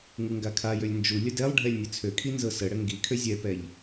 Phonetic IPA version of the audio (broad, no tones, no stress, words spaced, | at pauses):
ŋuŋɡakʰajølʲ nd͡ʒu lʲədɛlˠɖʱɛlʲ nʲət͡sʰøkʰi nzɤsəɽə ŋɡikʰø zʲɛpɛʎ